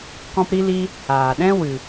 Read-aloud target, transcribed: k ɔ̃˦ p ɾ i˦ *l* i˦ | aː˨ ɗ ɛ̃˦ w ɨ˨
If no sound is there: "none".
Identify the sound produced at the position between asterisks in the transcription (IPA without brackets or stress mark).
l